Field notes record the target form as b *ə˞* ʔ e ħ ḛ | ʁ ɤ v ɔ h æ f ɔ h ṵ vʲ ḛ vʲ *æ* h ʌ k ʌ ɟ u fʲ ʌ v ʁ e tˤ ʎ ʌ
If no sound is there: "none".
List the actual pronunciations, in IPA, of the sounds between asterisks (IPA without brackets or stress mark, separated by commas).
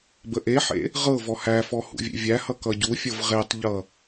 ə, æ